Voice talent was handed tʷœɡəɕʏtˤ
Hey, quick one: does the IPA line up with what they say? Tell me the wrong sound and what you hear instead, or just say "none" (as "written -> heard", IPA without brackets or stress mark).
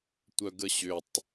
none